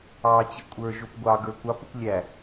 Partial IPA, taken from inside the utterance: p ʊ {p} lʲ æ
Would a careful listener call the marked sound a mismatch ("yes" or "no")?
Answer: no